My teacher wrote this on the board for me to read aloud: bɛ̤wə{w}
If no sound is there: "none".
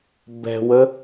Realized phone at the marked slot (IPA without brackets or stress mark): none